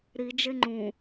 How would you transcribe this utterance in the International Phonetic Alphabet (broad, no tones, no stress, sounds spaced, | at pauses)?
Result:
ɾ i d͡ʒ e ŋ͡ǃ ũ